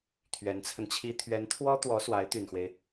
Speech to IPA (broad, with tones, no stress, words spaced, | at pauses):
t̪ʰɥɛ˧˥nt͡sʰə˧nt͡ɕʰi˥ t̪ʰɥɛ˧˥nt̪ʰwɔ˥t̪wɔ˧˥ swa˧˥ɪ̯t̪y˨˩nxwe˦ɪ̯